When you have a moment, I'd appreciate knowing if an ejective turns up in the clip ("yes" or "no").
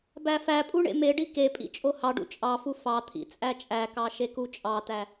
yes